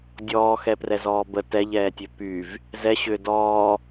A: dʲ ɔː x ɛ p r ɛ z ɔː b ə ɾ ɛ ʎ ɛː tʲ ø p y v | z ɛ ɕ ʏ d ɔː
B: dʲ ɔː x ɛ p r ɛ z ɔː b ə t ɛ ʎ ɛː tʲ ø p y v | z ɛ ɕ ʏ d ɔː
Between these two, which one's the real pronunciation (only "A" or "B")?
B